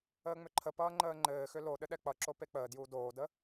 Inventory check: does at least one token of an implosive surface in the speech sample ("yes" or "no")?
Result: yes